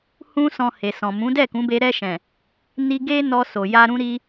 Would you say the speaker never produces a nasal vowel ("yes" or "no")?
no